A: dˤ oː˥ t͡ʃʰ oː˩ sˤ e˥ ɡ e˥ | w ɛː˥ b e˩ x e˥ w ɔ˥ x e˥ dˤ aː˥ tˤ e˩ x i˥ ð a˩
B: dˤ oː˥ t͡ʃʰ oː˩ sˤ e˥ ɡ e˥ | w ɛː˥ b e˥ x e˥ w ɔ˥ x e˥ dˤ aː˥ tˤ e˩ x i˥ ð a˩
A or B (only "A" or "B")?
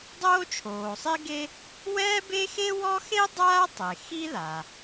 B